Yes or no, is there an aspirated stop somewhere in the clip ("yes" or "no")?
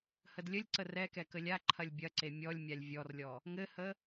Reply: yes